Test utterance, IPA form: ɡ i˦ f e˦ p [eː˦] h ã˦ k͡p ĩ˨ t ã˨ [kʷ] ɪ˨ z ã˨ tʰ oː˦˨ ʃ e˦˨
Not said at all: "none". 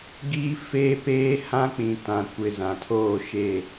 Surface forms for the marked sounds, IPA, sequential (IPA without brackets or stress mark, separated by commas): eː˦, kʷ